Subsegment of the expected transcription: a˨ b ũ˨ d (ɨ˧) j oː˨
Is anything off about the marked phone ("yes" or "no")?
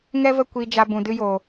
no